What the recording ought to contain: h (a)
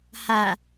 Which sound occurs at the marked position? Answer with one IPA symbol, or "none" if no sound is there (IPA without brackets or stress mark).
a